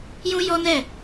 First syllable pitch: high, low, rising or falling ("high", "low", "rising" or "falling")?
high